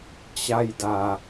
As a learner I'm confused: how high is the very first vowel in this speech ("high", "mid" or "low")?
low